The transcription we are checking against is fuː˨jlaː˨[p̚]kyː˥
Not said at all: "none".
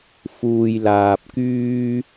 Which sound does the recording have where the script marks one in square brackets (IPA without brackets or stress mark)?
p̚